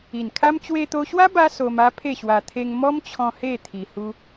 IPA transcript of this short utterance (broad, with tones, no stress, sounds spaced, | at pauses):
i˨˩ n kʰ a˦ m t͡ɕ w e˧ t̪ o˧ ɕ w a˦ b a˦ s o˧ m a˦ pʰ e˥˧ ɕ w a˧ t̪ʰ e˧ ŋ m ɔ˦ m t͡ɕʰ ɔ̃˧ h e˥˧ t̪ʰ i˧ h u˦